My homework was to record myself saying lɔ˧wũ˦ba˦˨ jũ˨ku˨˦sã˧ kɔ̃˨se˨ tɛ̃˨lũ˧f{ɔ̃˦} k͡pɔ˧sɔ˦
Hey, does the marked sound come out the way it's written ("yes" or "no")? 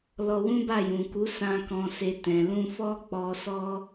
no